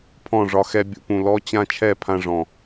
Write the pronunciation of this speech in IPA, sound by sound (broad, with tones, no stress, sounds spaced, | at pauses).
pʰ ɔ̃˦˨ ʐ ɒ˧ x ɛ˧ bʲ ṵ˧ p ũ˨ l ɔ˦ t͡ɕ ã˦ t͡ʃʰ ɛ˦˨ pʰ ã˧ ʐ ɔ̃˨